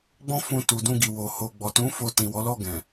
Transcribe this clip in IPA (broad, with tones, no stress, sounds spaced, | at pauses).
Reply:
ɡ͡b ɔ̃˦ f ũ˧ t u˨ d ũ˧ ɡ i˨ w o˧ h o˨ ɡ͡b ɔ˨ t ũ˨˦ f o˧ t ĩ˨ w ɔ˨˦ l ɔ˦˨ ɡ ɛ̃˨